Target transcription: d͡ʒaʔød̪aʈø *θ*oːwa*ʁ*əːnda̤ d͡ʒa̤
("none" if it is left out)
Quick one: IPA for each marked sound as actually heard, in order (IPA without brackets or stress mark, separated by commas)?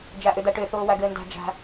θ, ɡ